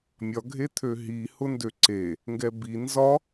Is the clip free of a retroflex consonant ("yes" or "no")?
yes